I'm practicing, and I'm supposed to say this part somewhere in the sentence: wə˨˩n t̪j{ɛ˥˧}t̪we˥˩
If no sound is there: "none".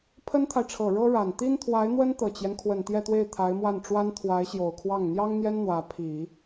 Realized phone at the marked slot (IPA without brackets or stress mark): ɛ˥˧